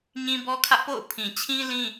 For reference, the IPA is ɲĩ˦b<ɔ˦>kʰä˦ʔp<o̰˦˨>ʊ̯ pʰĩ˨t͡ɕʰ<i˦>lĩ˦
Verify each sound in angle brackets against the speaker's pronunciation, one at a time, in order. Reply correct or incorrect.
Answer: correct, correct, incorrect: ĩ˦

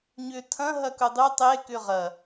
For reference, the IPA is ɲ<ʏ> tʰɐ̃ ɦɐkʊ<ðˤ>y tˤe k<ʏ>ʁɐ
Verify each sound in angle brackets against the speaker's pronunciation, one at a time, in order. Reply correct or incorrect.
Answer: correct, incorrect: dˤ, correct

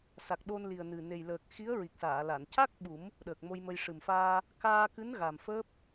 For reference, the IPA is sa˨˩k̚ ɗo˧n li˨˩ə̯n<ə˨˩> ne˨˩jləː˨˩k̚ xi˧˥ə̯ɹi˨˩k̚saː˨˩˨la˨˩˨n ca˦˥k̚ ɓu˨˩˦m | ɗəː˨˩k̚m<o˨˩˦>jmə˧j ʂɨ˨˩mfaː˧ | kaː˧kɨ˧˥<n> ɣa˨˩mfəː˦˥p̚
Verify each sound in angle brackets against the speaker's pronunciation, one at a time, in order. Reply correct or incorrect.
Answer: incorrect: ɨ˨˩, incorrect: o˧, correct

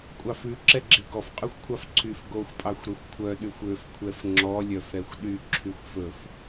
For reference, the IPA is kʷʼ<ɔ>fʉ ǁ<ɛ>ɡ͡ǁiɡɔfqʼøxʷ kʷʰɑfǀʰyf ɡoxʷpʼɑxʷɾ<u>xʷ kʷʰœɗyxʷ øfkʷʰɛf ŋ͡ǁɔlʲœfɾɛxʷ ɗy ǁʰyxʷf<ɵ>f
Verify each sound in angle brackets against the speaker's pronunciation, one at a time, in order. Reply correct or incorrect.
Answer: incorrect: ɑ, correct, incorrect: ø, correct

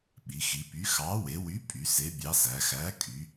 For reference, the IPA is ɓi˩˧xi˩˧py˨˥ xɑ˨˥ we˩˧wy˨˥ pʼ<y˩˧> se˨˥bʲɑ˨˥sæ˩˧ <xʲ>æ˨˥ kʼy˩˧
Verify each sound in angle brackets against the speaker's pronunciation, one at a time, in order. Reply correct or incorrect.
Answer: correct, incorrect: x

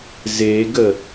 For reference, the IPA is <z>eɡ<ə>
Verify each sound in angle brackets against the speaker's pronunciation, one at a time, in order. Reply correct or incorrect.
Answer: correct, correct

